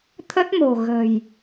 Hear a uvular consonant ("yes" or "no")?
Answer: no